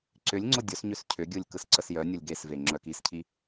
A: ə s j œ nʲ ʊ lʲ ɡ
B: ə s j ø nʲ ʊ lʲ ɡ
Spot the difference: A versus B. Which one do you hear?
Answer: A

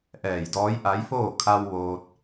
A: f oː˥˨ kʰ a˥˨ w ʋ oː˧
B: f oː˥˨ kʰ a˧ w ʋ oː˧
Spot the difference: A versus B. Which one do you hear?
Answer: B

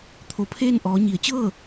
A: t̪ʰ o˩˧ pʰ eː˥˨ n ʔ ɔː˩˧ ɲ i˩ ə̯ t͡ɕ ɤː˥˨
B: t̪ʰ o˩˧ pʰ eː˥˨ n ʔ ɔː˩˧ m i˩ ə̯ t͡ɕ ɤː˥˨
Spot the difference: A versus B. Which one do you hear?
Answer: A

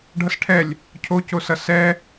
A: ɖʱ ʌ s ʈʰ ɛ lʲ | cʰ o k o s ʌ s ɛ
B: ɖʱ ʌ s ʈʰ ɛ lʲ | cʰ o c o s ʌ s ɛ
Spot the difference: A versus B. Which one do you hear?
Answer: B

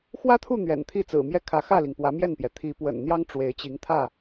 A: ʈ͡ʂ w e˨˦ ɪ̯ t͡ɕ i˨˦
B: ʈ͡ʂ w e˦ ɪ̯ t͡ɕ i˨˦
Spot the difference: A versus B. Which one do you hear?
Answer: A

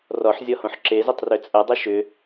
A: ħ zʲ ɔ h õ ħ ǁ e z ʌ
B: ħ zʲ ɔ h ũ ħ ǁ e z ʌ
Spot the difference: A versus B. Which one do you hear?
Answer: A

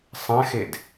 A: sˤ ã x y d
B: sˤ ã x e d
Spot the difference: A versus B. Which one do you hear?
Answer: B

